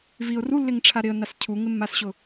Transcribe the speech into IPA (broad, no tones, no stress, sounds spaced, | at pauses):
v i ʊ̯ r u lː ɪ ŋ ʈ͡ʂʰ a ɾ ɪ ə̯ n a s cʰ u ŋ ɪ mː a s ɕ ʊ